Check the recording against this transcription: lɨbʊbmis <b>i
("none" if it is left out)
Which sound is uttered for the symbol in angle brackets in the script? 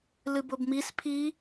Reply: pʰ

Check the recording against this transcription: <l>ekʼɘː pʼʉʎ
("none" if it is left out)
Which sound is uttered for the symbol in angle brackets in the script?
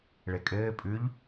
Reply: ɭ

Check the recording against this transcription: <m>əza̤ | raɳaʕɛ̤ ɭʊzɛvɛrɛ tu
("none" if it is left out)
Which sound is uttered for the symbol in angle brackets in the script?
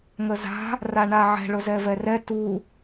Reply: ŋ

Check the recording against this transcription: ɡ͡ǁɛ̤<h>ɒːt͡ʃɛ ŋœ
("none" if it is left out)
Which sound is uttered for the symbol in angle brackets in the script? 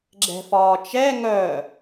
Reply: f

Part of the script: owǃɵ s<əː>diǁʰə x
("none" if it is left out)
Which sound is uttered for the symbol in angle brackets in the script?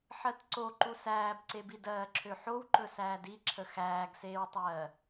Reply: æː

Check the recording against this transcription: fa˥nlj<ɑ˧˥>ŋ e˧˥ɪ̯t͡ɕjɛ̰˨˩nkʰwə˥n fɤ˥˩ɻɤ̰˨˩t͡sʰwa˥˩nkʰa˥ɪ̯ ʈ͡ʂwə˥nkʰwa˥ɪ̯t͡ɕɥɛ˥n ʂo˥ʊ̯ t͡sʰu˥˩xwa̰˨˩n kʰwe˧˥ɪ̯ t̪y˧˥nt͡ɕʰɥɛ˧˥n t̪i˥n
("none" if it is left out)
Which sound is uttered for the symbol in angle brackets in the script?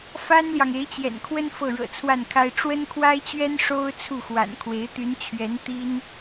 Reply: ɑ˨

